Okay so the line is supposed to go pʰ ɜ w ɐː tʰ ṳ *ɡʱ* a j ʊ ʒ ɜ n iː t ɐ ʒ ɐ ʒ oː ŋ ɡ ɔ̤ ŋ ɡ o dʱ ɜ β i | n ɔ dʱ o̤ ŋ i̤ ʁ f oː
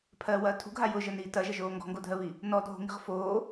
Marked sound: correct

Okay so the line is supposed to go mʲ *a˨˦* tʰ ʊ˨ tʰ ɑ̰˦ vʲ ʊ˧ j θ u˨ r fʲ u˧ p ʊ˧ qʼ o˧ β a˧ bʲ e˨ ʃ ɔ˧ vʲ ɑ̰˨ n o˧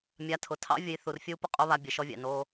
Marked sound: correct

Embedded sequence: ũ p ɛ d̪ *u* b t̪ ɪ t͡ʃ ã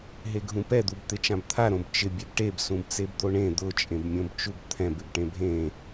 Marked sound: correct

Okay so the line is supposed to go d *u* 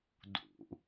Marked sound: incorrect: ṵ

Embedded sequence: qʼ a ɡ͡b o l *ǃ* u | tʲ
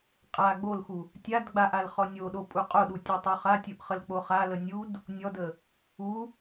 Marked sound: incorrect: x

